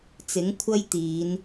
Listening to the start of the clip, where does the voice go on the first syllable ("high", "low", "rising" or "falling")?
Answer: rising